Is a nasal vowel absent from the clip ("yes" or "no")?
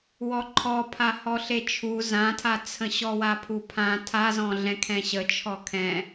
no